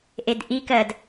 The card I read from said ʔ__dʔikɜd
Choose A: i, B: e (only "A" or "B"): B